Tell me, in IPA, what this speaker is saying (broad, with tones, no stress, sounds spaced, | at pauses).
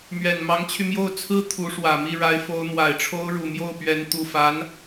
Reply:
m ɥ ɛ˨˩ n m ɑ˧˥ ŋ t͡ɕʰ y˧ m j o˥˩ ʊ̯ t͡sʰ ɹ̩˥ t̪ʰ u˧˥ ʂ w ä˨˩ m i˥˩ ɻ a˧˥ ɪ̯ f o˧˥ ʊ̯ n̪ w a˨˩ ɪ̯ ʈ͡ʂʰ o˥ ʊ̯ ɻ u˨˩ m j o˥˩ ʊ̯ p ɥ ɛ˧˥ n t̪ u˨˩ f a˧˥ n